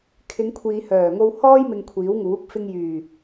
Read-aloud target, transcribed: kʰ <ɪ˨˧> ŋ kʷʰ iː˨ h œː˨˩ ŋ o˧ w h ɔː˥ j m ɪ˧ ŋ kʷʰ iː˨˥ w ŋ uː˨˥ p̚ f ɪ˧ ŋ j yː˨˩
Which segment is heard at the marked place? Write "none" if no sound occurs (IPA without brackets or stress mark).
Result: ɪ˨˧